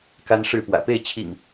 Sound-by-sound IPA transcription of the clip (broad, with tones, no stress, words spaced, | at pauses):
ka˦nʂɻ̩˥˨pwä̰˨˩ pe˥˨ɪ̯t͡ɕʰḭ˨˩ŋ